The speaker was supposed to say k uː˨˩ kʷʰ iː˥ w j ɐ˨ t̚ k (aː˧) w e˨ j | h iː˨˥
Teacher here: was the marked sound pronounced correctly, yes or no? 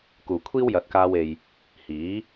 yes